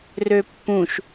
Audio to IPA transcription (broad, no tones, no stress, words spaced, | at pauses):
røpːũʃ